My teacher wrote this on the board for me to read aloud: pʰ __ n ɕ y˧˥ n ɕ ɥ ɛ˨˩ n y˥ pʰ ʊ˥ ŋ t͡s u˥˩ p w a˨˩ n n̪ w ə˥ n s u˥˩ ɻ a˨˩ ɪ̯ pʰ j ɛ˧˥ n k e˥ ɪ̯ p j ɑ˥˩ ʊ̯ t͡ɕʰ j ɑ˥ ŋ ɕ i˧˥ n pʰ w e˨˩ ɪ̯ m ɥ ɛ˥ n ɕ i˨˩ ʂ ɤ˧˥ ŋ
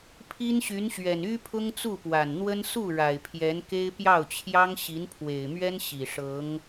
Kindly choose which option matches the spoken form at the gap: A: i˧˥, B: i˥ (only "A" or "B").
B